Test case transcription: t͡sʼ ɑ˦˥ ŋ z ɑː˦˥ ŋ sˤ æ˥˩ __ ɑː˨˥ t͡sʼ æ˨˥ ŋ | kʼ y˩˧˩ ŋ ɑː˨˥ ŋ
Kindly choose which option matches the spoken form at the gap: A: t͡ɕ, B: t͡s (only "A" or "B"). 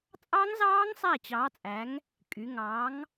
A